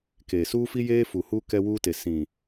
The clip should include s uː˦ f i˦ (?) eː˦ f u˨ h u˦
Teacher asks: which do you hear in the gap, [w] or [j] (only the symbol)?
j